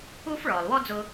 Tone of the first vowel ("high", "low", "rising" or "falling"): high